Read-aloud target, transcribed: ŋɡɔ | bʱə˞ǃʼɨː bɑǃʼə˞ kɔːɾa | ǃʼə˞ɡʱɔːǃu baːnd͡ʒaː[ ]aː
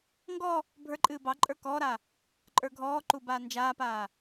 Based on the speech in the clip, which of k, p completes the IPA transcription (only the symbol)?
p